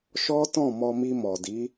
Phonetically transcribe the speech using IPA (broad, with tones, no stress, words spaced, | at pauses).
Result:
ʃɔ˦ tɔ̃˦˨mɔ˧mi˧ mɔ˨di˨˦